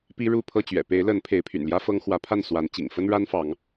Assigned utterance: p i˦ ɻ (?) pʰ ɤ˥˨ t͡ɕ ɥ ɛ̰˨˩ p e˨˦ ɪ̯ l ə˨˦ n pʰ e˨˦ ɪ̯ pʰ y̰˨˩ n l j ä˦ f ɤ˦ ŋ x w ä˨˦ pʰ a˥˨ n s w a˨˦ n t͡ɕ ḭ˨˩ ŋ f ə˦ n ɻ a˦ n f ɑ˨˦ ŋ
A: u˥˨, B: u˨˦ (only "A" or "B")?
A